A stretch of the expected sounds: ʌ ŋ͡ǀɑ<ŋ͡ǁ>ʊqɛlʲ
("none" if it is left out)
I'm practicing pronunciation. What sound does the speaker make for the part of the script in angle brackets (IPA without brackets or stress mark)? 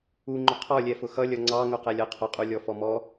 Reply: ŋ